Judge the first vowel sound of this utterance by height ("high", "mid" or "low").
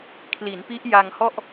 high